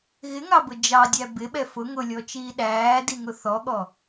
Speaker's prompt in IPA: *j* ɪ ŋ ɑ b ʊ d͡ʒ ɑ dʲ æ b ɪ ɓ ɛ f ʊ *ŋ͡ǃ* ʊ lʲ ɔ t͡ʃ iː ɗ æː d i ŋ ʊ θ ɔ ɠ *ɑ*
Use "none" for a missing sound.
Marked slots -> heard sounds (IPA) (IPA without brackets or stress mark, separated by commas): ɣ, ŋ, ɔ